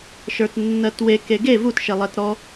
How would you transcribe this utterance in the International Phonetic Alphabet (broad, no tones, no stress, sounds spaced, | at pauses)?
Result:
ʃ ə˞ t nː ɜ t w e k e ɡ e v u t ʃ e lˠ ɜ t ɾ ɔ